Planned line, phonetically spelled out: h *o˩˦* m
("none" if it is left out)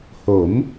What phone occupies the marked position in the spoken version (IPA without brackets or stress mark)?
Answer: o˩˦